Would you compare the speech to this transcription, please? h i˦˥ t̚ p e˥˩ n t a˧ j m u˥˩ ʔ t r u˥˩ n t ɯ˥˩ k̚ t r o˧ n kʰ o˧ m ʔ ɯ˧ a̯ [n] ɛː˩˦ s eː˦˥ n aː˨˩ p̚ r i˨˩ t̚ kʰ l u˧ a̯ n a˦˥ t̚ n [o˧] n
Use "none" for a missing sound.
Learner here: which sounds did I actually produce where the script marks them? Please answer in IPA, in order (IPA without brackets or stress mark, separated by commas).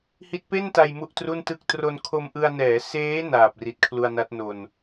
n, o˧